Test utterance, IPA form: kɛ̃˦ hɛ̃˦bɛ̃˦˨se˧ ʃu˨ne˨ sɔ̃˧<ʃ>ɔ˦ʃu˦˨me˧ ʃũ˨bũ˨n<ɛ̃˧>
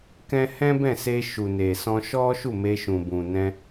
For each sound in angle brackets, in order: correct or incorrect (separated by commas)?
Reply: correct, correct